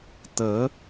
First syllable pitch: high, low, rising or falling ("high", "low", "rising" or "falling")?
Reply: rising